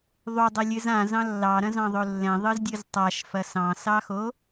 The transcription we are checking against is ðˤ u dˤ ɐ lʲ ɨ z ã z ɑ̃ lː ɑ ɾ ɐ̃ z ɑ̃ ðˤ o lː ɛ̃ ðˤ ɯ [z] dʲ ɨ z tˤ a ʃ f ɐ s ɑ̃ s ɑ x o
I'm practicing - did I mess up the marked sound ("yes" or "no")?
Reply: no